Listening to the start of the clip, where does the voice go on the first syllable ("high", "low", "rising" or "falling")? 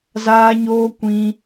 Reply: high